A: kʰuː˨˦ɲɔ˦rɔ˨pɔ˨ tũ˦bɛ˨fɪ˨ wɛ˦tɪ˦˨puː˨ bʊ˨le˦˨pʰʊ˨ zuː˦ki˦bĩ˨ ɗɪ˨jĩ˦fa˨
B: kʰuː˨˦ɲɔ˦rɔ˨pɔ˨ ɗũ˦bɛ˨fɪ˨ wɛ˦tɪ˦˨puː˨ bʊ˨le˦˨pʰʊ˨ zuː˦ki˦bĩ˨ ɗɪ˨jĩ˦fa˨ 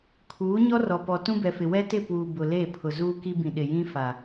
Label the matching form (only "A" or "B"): A